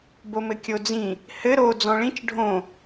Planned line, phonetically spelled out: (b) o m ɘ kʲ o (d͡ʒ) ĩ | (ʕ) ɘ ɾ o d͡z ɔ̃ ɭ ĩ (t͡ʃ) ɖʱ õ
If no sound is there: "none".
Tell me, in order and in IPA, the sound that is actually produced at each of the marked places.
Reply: b, d͡z, h, t͡ʃ

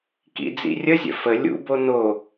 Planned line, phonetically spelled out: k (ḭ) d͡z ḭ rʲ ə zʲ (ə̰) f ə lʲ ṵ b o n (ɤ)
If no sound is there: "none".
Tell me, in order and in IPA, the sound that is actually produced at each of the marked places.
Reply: ḭ, ə̰, o

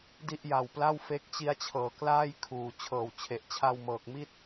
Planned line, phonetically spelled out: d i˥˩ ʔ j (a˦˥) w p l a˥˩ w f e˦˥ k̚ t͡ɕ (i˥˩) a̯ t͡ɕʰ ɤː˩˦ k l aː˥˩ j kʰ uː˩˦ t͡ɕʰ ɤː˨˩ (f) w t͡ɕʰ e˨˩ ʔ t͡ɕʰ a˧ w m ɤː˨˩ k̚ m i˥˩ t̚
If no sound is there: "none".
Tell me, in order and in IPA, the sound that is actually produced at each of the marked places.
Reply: a˧, i˦˥, none

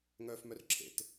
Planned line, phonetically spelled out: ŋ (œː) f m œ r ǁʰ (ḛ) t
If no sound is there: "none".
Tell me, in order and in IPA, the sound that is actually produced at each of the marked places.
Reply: œː, ḛ

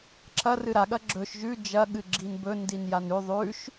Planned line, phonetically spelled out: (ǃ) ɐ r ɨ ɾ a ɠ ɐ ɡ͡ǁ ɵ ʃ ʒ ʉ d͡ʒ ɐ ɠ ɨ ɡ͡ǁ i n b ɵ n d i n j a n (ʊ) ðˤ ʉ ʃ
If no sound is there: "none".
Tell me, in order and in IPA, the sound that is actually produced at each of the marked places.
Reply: ǁ, ʉ

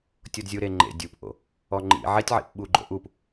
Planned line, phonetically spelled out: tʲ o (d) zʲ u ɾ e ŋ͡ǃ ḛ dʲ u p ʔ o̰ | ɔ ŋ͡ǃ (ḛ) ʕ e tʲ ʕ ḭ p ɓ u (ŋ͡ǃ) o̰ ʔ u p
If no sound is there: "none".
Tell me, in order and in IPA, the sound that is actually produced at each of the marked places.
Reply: d, ḭ, ɡ͡ǃ

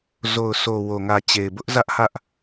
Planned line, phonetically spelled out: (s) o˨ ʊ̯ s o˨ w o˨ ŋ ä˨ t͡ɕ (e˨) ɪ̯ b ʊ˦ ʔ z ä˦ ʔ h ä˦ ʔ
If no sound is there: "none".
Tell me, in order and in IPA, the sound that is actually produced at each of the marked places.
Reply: z, e˨

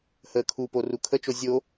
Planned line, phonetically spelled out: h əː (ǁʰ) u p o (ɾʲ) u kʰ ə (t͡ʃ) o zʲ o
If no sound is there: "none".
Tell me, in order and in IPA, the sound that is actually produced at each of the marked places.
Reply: kʰ, r, t͡ʃ

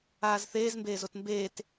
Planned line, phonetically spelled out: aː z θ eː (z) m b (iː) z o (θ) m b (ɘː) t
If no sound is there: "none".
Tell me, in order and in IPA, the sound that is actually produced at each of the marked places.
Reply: z, eː, t, eː

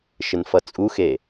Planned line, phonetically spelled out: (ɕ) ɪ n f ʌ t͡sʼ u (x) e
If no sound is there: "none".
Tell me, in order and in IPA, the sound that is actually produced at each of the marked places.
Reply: ʃ, x

